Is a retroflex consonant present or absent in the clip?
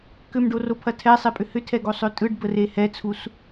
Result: present